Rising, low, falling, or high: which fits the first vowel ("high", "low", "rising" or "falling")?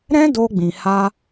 high